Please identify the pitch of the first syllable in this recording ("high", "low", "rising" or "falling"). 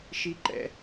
high